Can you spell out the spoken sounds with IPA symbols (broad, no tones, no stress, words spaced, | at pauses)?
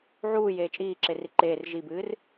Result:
ʕuː jeːt͡ʃʼiːǁeri ǃeːr ʒibɨːr